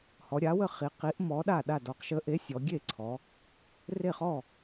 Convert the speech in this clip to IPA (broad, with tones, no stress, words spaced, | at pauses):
hɔ˩˧ɾʲa˨˥wə˥˩χi˩˧ qi˨˥ʔmɔ˨˥ɗa˥˩ ɗa˥˩dɔ˨˥q ʃə˨˥ʔe˨˥ sʲɔ˩˧ɡʲe˥˩ǀʰɔ˩˧ | re˥˩χɔ˥˩